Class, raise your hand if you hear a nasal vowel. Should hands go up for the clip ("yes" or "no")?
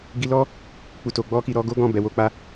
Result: yes